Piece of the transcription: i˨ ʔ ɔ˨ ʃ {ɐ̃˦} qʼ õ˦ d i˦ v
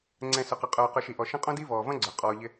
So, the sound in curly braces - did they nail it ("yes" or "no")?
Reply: yes